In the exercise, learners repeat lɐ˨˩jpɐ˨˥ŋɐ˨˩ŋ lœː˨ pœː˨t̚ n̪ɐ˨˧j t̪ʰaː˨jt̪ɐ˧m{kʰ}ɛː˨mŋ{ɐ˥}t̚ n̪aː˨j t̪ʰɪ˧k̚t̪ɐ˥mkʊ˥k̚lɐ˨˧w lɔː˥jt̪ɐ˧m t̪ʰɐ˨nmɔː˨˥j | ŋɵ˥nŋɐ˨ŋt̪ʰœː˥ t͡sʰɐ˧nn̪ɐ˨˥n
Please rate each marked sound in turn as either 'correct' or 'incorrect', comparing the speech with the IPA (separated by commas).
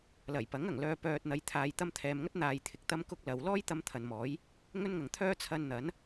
incorrect, correct